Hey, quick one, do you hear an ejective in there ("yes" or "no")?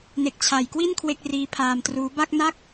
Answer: no